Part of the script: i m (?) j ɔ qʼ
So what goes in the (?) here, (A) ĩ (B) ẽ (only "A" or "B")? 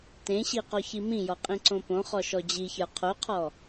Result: A